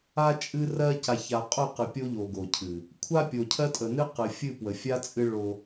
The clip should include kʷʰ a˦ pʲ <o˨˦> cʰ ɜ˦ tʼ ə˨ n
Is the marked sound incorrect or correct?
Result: incorrect: o˨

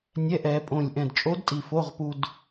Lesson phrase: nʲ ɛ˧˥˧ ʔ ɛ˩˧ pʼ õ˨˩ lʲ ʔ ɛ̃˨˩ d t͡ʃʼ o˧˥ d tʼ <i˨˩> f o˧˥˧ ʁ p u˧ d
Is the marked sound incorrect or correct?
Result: correct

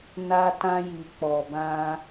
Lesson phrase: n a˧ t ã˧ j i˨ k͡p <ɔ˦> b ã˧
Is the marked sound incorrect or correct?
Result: incorrect: ɔ˨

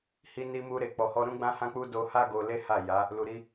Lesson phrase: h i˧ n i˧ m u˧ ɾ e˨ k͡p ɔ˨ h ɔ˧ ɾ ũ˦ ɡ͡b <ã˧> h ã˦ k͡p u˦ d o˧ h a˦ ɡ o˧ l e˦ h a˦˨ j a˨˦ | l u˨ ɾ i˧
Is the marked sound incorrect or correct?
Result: incorrect: ã˦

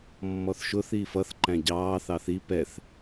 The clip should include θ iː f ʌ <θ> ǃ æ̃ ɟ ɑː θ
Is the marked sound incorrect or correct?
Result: correct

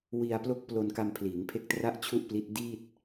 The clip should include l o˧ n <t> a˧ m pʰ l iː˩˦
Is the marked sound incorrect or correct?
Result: incorrect: k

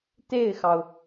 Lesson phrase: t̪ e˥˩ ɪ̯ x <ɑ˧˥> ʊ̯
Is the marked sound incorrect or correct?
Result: incorrect: ɑ˩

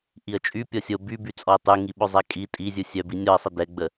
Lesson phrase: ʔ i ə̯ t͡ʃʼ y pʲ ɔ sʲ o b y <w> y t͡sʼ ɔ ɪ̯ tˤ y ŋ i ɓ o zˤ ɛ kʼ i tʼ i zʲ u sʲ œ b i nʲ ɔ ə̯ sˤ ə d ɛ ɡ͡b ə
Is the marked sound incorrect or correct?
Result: incorrect: b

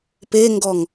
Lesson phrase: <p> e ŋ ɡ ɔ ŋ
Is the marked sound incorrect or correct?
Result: correct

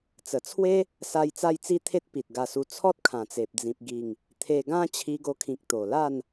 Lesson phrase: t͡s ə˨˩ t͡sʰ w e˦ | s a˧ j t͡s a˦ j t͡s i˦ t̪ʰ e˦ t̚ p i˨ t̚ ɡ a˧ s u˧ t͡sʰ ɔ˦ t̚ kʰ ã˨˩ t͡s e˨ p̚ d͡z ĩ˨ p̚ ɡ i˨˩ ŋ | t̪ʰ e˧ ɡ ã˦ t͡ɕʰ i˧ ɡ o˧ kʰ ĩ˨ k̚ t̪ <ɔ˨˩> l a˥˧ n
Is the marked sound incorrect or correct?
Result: incorrect: o˨˩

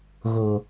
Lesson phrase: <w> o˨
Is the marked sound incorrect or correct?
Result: incorrect: ɣ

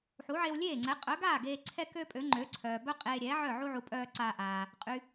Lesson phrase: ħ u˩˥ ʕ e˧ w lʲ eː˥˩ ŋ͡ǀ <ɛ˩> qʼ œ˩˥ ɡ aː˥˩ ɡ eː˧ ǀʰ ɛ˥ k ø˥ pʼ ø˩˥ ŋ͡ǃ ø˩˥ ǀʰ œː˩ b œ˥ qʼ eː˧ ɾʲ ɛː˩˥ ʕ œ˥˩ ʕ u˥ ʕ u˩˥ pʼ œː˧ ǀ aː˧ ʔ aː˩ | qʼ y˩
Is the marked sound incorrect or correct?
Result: incorrect: ɛ˩˥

